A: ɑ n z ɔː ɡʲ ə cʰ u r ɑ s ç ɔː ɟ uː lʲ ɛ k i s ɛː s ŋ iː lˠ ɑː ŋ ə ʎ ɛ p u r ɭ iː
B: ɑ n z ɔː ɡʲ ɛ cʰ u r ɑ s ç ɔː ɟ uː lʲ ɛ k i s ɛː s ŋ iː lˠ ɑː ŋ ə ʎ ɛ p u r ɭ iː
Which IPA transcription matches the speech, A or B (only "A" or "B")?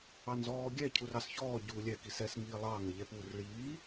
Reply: B